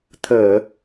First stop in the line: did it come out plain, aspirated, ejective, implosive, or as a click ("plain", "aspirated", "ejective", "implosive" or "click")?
aspirated